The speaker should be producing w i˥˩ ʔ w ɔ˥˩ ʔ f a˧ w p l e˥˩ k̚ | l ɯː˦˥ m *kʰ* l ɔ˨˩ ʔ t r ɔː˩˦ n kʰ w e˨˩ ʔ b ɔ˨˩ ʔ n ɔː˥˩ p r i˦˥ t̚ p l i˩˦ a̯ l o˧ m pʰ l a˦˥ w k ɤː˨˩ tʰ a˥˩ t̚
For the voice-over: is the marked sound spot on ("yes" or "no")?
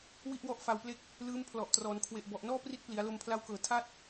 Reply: no